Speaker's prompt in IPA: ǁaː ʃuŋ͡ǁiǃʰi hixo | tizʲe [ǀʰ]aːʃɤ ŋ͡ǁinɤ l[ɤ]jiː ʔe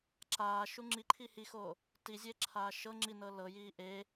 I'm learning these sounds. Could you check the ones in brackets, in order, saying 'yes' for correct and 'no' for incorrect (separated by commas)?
no, yes